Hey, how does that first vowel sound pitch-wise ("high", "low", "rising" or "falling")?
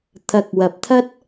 low